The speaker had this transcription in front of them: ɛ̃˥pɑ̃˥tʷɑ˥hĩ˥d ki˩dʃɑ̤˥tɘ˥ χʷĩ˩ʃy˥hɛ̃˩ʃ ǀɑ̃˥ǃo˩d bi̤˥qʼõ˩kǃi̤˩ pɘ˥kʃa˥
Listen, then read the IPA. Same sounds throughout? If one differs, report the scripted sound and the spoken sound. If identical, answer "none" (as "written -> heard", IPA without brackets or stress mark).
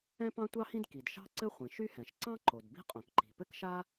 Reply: t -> ǀ